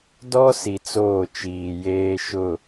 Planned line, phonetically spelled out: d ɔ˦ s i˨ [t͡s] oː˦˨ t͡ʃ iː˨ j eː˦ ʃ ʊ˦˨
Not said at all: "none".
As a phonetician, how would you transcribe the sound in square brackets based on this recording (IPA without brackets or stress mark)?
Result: t͡s